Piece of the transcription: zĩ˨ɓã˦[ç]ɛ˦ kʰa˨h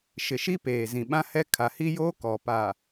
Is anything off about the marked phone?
yes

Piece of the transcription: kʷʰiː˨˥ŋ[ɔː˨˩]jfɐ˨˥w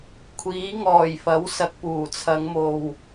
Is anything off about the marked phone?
no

